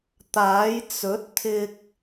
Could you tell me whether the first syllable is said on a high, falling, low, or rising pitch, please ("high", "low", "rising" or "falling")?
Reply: rising